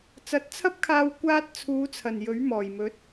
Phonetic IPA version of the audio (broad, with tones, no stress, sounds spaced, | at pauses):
t͡s ɐ˨˥ t̚ t͡sʰ ɐ˥ p̚ kʰ aː˧ w kʷ aː˧ t̚ t͡sʰ uː˨˧ t͡sʰ ɐ˨˩ n j ɵ˨˥ ɥ m ɔː˨˩ j m ɵ˨˥ t̚